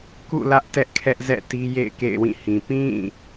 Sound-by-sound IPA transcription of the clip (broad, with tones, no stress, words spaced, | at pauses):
kṵ˦˨lä˦ʔ tɛ˦ʔkʰɛ˦ʔzɛ̰˦˨ti˦ jḛ˦˨ɪ̯kḛ˦˨ɪ̯wĩ˦˨hĩ˨ pĩ˦˨